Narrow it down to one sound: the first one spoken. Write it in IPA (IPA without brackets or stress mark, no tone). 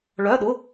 ɭ